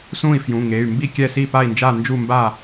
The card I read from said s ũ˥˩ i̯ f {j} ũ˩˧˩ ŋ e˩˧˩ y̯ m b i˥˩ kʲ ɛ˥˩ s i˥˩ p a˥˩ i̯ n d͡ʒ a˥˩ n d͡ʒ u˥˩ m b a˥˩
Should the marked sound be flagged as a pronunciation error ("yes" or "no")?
no